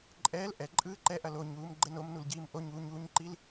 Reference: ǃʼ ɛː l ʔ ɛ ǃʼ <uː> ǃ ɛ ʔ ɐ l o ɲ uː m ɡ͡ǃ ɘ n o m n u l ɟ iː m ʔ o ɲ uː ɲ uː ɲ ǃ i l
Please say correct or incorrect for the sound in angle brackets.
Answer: incorrect